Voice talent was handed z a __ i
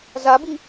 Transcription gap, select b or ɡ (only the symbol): b